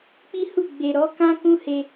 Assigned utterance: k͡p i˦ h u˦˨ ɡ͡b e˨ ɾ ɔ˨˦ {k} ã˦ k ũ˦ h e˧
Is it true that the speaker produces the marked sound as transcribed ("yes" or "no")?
yes